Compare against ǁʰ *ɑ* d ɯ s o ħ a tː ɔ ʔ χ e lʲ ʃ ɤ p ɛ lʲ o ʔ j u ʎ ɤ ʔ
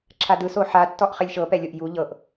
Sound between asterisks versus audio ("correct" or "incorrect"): incorrect